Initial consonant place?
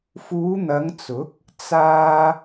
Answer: labial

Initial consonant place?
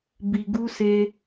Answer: labial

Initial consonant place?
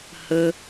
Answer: glottal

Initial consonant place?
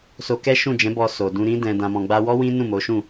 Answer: alveolar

